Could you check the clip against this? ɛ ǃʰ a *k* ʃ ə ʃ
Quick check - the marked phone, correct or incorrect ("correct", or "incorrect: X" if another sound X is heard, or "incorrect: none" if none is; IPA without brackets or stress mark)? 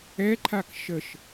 correct